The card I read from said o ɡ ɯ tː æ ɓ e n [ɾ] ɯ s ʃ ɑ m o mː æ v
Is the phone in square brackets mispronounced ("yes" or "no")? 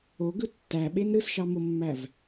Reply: no